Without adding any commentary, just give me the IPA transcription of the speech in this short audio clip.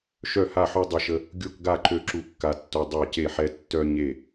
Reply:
ʃ œ˥˧ h a˥˧ ħ ø˥ dˤ a˥ ʃ ə˥ | ɡʲ o˥˧ k ɡ a˥˧ ǃ ø˥ ǁ u˥˧ kː a˥ tː o˥ dˤ a˥˧ c e˥˧ ħ ɛ˥ tː œ˥ ɲ e˥˧

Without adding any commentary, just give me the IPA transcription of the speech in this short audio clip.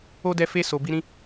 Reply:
o˦ d ɛ˧ f e˧ s o˨ b i˧ ɾ ĩ˧

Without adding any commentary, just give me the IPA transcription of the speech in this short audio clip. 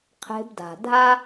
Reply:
qʰ e̤˧ b d a̤˨ dʱ a˦

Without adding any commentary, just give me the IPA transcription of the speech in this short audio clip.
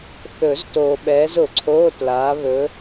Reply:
θ ɵ˨˩˦ z t oː˨ ɓ ɛː˨˦ z ʊ˨˩˦ ǀʰ oː˧˥˧ t l aː˨˦ β ɵ˨˦

